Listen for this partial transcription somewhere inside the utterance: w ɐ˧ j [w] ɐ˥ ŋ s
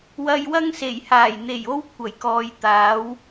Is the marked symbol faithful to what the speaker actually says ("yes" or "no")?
yes